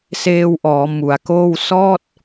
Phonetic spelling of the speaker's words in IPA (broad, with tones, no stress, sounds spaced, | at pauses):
s eː˧ w ʔ ɔː˩˦ m u˩˦ a̯ k oː˥˩ w s ɔː˥˩ t̚